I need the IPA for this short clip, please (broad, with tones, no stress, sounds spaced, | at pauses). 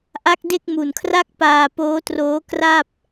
ʔ a˦˥ k̚ d e˥˩ k̚ m u˨˩ n kʰ r a˥˩ k̚ p aː˧ p oː˦˥ t r oː˦˥ k r a˥˩ p̚